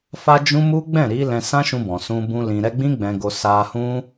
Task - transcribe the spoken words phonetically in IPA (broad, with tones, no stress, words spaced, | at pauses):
fa˦d͡ʒũ˦ mu˦ ɡ͡bɛ̃˦˨ɾi˨˦ lɛ̃˧sã˦ʃũ˧bɔ̃˨ sũ˧bũ˧ lĩ˨ɾɛ˧ɡ͡bĩ˦ ɡ͡bɛ̃˧ɡo˧ sa˧hũ˦